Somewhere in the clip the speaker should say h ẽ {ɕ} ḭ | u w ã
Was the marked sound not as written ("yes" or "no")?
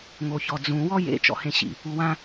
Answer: no